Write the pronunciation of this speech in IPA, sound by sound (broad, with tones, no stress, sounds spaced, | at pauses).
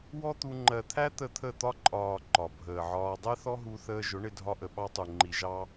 w ɔ˦ t̪ u˧ ŋ͡ǃ ɜ˨ t̪ʰ æ˦ t̪ ə˦˨ t̪ʰ ə˦˨ t̪ ɒ˦ ǃʼ ɒː˨ ǃ ɒ˨ bʱ əː˨ ʕ ɒː˧ dˤ ɛ˦ θ ɔ˦ ɦ u˧ θ əː˧ ʒ ʊ˨˦ ɳ ɪ˧ dʱ ɒ˧ ʔ ə˨ ɓ ɑ˦ tˤ u˨ ŋ͡ǃ i˨ ʒ ɑ˦